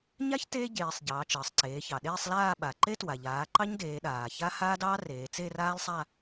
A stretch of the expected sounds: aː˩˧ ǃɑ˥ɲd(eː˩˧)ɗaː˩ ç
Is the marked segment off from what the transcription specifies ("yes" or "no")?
no